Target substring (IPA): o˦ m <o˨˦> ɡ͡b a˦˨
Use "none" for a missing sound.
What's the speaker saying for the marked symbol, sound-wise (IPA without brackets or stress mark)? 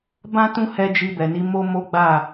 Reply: o˦